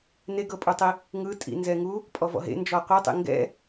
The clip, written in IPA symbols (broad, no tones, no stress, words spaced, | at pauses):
neɡɤpʼutˤi | ŋɯtʼḭnzɛŋu | pʼɔvɔ̰ɦḛ nd͡ʒɔqʷɤtˤḛ ŋɡɛ̰